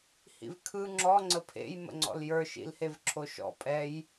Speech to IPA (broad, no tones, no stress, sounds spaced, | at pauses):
h ḭ v kʰ ɯ ŋ͡ǁ ɔ ŋ͡ǀ ə pʰ ḛ j m ə̰ ŋ͡ǀ ɔ̰ l j ə˞ ʃ ḭ l h e v ǁʰ o ʃ ɔ̰ pʼ ɛ j